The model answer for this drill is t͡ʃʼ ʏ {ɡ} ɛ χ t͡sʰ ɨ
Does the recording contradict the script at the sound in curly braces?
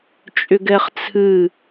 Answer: no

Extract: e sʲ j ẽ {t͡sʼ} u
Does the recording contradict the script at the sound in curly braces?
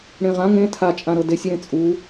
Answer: no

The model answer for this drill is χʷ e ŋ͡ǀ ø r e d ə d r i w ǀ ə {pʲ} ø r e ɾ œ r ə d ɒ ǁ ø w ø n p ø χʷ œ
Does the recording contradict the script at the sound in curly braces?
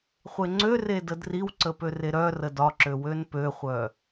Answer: yes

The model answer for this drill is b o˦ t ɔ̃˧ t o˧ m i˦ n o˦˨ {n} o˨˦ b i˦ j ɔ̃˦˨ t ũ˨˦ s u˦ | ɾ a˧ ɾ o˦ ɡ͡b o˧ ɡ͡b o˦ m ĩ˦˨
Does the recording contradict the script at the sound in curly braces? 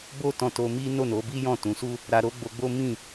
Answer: no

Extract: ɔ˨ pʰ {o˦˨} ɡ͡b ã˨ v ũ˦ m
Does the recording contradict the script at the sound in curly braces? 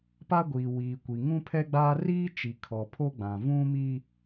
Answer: yes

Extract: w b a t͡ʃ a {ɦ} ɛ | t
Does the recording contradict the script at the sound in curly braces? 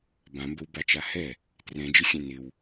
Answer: yes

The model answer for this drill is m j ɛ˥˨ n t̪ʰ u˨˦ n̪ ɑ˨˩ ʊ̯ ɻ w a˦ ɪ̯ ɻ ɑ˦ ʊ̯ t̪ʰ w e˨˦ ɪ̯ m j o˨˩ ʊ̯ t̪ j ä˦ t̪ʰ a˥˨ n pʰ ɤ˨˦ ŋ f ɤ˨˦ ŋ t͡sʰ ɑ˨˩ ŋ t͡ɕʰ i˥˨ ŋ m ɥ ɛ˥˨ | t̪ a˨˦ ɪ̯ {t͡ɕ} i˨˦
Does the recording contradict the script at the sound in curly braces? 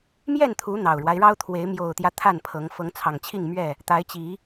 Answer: no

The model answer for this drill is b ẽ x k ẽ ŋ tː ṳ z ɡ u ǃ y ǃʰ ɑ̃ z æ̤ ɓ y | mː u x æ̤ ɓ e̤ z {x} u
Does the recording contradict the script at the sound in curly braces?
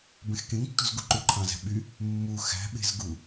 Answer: yes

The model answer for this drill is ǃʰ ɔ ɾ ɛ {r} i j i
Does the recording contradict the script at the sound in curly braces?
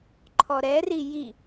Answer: no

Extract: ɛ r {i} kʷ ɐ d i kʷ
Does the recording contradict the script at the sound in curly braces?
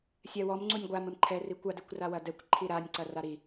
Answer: no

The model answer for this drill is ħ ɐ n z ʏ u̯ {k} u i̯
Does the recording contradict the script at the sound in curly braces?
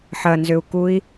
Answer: no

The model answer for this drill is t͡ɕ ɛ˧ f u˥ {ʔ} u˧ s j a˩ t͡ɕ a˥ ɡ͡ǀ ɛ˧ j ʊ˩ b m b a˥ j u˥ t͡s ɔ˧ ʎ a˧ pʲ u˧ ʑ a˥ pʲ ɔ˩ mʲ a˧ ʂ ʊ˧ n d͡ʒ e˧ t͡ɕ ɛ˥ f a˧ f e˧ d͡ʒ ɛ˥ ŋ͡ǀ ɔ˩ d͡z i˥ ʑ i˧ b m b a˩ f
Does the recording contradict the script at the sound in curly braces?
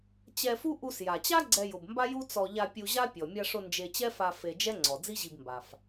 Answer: no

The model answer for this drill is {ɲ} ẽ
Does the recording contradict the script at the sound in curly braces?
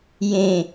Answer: yes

